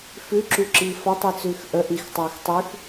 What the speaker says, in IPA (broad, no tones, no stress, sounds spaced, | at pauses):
f ʉ ǁ ʉ ǁ iː f ɒ tˤ ɨ t͡s ʉː x ʔ ə ʔ i x tˤ ʉː x tˤ ʉ x